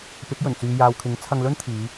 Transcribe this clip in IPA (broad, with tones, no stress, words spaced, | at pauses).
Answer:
pɪ˨˥k̚jɵ˨˩n t͡syː˨jaː˨wkʰɪ˨˥ŋ t͡sʰɐ˧ŋlɵ˥nt̪ʰiː˨˧